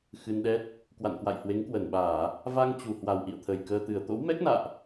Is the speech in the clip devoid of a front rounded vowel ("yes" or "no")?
yes